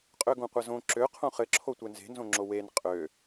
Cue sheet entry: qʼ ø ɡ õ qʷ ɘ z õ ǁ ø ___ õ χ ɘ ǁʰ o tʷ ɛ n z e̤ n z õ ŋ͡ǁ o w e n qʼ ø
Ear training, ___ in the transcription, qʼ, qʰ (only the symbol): qʰ